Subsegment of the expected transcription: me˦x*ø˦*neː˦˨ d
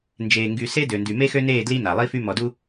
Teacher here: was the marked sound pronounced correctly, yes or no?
yes